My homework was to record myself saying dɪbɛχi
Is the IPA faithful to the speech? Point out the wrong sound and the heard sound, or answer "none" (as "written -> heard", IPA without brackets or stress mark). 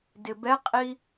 χ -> qʼ